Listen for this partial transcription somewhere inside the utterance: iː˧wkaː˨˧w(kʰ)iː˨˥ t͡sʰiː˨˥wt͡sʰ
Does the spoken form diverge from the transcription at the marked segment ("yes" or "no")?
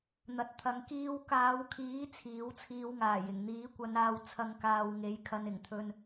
no